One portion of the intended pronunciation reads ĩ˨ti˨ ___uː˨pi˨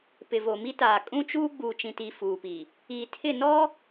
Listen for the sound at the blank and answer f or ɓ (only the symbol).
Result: f